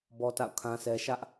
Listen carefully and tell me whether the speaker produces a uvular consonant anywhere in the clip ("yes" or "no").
no